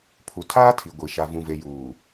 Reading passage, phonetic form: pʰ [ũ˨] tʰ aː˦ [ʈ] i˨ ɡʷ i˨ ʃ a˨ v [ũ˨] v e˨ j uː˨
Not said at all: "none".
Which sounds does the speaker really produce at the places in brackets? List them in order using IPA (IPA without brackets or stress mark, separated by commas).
u˨, tʰ, ũ˨